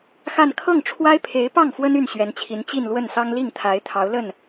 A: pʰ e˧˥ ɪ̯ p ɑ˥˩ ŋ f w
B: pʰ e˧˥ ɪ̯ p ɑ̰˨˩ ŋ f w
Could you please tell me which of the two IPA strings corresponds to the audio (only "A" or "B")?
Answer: A